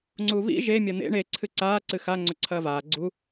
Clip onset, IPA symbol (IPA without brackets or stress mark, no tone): ŋ͡ǀ